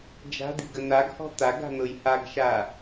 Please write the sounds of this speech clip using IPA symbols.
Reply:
d͡ʒ a̤ d̪ i̤ ɡ ə n̪ a ɡ h ɔ̤ t̪ a ɡ a̤ n̪ ɤ j h a ɡ ʃ a

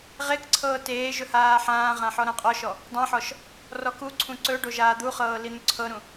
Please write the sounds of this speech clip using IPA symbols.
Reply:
ʁ e k ǀʰ ɤː t eː ʒ ɵ h aː ħ ãː ʁ ã ħ ɔ ɾ ã qʼ ɔ ʃ ɔ | dˤ ã ħ ɔ ʃ | r ɔ k u ǀʰ ũ ǀ ɵ ɖ o ʒ aː d̪ u χ ɤː l i n̪ ɵ ǀʰ ɤ ɾ ũ

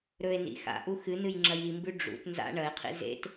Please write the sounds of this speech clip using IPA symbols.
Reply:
ɾ ɵ e̯ n ḭ x a̰ ʔ u x ɨ n ɨ j ŋ͡ǁ ɐ j i m b ʉ ɖ͡ʐ ṵ t n z a̰ ɳ ɐ e̯ qʰ ḭ z ḛ t

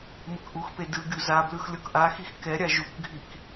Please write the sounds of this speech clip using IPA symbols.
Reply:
m ɯ k ʔ u x p e d ɯ ɡʲ u z a b l ɯ x lʲ ɔ k ʔ a x i x k ɛ ɾʲ a ʒ u k ɡʱ i k

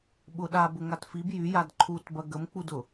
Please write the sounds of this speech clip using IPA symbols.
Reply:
ɓ ʊ ɗ a b ʊ ŋ a t f i b j y j a d ǃʰ u t b ɐ ɡ ə m k͡p u d ʊ

